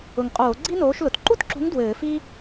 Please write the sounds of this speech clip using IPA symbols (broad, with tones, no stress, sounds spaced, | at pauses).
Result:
ʊ˨˩ ŋ qʼ oː˧˩˧ ɡ͡ǀ i˥ n oː˨˥ ʃ l ʊ˨˩ t ǃ u˥ t ǁ ṳ˨˥ ŋ d w ɘː˧˩˧ f i˥